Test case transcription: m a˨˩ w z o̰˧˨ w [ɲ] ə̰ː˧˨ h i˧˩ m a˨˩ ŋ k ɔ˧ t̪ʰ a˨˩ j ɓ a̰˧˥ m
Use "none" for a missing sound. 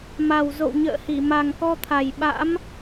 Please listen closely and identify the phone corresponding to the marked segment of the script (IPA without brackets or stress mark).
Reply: ɲ